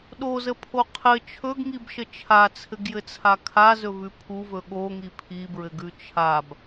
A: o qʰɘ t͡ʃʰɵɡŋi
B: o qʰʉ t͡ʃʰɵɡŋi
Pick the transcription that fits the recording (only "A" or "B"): A